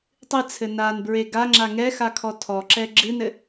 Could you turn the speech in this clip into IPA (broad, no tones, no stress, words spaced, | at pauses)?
tˤɨt͡sʰɘ nanbɹe ɡaŋ͡ǁa ŋɛxakʰɔ tʰɔǁɛ ɡ͡ǁɨnɘ